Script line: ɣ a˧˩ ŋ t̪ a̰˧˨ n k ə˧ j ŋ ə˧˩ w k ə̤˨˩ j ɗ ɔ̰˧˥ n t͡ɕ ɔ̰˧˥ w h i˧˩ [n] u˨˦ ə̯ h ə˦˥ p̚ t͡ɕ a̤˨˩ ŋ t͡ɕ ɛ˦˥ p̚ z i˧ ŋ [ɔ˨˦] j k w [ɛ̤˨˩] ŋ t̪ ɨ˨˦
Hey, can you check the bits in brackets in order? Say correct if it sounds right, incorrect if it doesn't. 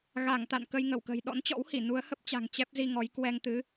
correct, correct, incorrect: ɛ˧

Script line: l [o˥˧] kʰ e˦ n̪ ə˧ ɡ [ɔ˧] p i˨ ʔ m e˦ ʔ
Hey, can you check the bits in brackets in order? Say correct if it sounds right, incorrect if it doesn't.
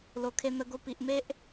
incorrect: o˧, incorrect: o˧

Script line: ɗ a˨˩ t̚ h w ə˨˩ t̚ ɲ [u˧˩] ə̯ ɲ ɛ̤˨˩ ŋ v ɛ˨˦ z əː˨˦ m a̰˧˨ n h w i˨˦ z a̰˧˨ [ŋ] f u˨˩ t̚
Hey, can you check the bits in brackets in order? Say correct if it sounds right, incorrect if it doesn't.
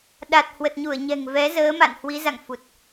correct, correct

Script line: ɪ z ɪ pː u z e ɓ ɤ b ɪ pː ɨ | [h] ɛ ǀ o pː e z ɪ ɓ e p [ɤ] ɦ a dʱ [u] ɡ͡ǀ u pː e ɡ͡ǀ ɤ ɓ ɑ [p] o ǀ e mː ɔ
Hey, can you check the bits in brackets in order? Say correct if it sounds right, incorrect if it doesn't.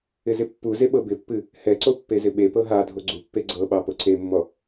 correct, correct, incorrect: o, correct

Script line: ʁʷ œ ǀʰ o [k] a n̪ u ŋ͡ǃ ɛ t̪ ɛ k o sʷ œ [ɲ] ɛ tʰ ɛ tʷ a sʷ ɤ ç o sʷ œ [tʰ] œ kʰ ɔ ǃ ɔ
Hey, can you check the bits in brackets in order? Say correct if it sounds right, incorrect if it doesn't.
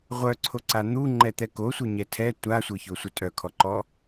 incorrect: ǀ, correct, incorrect: tʼ

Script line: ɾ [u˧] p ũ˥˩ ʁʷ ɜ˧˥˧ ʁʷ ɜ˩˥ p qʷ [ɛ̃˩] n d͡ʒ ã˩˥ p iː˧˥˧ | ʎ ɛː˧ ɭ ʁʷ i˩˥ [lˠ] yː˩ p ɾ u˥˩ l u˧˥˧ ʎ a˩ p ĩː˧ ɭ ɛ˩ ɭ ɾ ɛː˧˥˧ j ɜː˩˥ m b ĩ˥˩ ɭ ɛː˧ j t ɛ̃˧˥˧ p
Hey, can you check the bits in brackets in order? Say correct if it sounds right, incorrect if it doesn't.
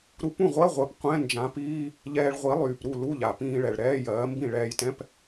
correct, incorrect: ɛ̃˧˥˧, correct

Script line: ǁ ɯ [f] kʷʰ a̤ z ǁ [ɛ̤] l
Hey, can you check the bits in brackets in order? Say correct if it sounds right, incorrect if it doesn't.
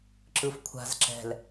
correct, correct

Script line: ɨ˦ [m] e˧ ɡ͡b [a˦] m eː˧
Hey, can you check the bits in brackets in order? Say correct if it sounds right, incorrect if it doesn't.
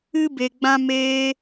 incorrect: b, incorrect: ã˦

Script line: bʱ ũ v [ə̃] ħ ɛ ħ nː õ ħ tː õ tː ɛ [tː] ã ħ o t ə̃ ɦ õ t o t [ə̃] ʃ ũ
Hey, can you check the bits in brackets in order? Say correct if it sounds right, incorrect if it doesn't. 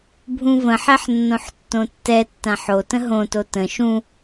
correct, correct, correct

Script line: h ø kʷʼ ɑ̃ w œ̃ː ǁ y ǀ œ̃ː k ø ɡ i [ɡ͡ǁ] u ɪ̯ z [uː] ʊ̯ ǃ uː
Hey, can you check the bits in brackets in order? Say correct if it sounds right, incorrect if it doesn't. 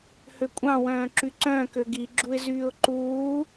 correct, incorrect: yː

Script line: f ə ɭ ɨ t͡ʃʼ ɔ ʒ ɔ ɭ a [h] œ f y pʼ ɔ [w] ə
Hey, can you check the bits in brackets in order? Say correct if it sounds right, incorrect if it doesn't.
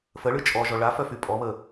incorrect: f, incorrect: β

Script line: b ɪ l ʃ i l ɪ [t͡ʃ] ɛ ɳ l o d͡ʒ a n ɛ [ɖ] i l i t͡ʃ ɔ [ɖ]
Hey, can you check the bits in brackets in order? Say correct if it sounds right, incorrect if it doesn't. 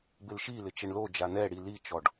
correct, incorrect: ɽ, correct

